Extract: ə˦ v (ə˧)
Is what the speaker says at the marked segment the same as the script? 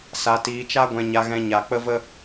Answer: no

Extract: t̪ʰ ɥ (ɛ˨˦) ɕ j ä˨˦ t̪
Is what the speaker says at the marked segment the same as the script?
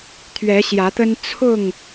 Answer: yes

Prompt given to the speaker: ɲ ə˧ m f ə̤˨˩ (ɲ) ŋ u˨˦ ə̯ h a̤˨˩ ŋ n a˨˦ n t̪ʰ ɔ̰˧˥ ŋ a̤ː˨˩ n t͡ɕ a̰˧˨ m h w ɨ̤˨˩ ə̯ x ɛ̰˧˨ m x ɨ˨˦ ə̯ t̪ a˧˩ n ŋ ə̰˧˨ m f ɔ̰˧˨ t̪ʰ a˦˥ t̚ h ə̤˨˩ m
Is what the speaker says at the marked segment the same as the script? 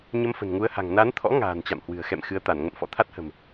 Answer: no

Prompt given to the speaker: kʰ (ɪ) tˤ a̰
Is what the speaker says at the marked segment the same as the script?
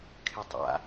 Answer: yes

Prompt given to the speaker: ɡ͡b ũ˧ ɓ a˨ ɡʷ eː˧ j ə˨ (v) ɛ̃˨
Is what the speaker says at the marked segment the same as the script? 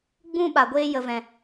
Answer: yes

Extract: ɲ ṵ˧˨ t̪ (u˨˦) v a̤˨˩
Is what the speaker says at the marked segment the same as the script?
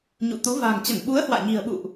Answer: yes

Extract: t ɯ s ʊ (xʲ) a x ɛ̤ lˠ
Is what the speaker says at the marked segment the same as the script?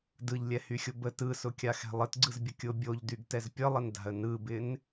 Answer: no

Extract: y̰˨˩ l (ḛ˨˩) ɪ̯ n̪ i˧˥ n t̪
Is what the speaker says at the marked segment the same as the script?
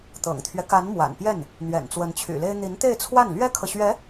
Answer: no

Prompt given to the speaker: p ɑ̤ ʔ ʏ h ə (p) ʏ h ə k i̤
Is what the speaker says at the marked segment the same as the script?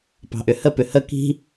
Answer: yes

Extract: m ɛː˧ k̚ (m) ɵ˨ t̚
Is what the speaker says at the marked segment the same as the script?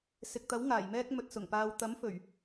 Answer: yes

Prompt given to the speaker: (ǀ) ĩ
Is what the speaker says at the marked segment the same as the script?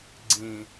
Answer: no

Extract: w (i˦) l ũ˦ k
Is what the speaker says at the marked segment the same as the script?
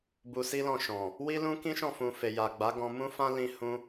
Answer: yes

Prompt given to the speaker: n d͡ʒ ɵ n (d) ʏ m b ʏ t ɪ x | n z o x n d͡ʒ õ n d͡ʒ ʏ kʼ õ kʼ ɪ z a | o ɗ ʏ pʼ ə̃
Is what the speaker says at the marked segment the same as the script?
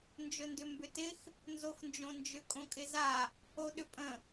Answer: yes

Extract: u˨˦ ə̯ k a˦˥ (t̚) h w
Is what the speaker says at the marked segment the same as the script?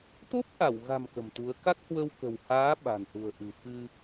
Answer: no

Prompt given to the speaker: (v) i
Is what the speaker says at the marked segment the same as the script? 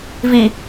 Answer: yes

